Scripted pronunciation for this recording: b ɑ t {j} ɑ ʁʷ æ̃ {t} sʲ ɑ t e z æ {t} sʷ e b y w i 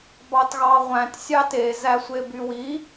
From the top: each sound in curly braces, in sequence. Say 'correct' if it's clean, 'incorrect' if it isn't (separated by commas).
incorrect, correct, incorrect